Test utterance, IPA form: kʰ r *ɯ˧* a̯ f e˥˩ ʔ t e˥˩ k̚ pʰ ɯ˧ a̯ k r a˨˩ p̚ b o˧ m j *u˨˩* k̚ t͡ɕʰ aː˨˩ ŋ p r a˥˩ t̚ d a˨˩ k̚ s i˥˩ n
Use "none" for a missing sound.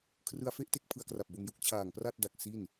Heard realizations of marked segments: ɯ˧, u˦˥

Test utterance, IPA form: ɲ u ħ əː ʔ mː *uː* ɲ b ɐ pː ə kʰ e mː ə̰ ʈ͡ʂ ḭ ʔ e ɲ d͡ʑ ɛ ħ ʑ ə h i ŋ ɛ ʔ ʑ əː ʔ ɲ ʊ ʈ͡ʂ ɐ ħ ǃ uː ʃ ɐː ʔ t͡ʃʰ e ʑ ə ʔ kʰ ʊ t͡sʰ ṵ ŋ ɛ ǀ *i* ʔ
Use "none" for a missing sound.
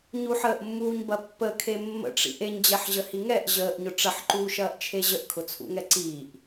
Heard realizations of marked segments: uː, i

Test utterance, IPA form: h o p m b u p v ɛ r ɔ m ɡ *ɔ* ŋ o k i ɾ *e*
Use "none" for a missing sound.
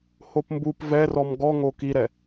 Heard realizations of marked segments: ɔ, ɛ

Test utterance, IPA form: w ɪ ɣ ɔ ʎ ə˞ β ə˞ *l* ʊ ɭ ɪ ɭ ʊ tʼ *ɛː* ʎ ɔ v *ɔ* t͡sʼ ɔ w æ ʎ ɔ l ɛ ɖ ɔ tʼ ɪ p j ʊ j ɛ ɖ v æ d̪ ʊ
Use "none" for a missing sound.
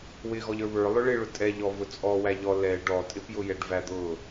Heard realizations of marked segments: lˠ, ɛ, ʊ

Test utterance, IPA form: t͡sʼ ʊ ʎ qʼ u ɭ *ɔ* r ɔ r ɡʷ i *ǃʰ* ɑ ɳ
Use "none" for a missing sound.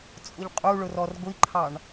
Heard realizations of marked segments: ʊ, ǃʰ

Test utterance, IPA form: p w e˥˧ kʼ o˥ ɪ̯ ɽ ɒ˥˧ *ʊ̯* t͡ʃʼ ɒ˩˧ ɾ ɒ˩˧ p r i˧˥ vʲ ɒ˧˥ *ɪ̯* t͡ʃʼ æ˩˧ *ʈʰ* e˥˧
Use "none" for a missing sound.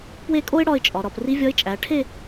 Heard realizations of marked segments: ɪ̯, ɪ̯, ʈʰ

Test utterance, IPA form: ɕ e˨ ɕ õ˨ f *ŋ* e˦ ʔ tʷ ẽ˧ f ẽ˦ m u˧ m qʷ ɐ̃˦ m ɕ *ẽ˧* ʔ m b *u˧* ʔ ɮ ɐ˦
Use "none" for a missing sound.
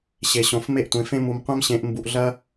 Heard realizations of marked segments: m, ẽ˧, u˧

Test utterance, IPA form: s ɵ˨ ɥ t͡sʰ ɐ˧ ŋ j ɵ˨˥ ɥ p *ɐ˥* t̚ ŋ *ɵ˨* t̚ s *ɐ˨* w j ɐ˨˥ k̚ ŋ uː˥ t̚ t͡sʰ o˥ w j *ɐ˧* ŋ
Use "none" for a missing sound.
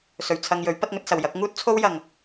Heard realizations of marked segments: ɐ˥, ɵ˧, ɐ˨˩, ɐ˨˩

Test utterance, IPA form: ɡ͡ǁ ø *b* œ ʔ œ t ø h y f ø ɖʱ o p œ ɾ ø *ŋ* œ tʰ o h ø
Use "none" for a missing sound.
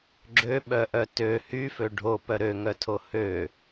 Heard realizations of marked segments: ɓ, ŋ

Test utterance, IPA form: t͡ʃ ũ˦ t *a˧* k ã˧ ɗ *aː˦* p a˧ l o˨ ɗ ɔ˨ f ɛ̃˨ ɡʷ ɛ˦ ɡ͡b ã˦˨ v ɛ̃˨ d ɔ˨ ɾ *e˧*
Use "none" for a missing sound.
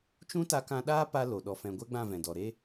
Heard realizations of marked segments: a˧, aː˦, e˧

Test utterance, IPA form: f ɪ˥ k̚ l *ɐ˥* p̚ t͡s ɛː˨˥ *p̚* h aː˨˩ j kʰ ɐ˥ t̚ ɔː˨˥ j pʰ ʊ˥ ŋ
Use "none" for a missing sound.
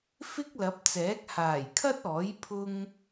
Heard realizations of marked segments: ɐ˨˥, k̚

